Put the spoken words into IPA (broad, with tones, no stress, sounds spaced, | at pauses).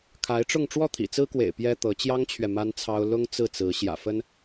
kʰ a˧˥ ɪ̯ ʈ͡ʂ ʊ˥˧ ŋ ʈ͡ʂ w ɔ˥˩ t̪ʰ ḭ˨˩ t͡s ɹ̩˥ k w ḛ˨˩ ɪ̯ p j ɛ˥ t̪ ɤ˧˥ t͡ɕ j ɑ˥ ŋ t͡ɕʰ ɥ ɛ˨ m a˥ n t͡sʰ ɑ˥ ʊ̯ l ʊ˥ ŋ t͡s ɹ̩˥˩ t͡s ɹ̩˧˥ ɕ j ä̰˨˩ f ə˥ n